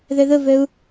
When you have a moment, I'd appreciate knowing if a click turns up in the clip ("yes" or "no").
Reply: no